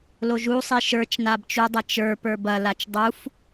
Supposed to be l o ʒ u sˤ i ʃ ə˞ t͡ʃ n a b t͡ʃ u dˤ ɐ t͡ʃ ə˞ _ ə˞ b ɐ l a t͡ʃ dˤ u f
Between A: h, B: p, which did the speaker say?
B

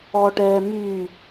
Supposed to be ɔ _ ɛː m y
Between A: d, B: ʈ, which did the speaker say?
B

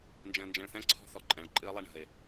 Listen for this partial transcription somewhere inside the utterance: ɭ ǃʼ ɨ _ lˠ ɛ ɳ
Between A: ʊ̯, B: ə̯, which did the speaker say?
B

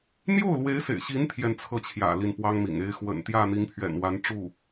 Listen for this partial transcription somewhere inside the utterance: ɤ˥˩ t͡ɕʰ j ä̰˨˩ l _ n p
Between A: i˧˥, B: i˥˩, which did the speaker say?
B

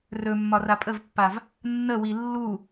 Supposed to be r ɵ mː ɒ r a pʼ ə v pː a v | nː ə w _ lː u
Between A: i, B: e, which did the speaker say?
A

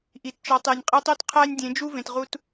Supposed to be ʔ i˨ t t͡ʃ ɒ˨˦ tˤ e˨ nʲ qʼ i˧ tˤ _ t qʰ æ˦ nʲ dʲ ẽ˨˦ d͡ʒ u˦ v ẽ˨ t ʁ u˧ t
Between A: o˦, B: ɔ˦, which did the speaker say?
A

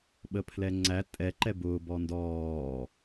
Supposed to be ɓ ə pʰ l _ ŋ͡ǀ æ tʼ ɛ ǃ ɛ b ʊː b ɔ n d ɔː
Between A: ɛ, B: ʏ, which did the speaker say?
A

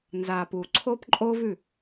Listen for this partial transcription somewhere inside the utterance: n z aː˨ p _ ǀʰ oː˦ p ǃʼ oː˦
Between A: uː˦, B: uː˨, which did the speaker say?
B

